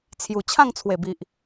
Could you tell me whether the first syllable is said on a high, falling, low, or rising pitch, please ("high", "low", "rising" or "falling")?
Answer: low